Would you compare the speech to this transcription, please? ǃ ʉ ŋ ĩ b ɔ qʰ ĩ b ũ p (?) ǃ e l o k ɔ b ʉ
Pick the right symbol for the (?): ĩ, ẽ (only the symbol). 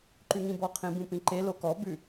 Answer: ĩ